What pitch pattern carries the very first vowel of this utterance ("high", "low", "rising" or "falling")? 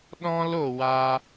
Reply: high